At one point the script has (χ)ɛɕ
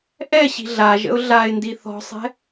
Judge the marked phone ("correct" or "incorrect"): incorrect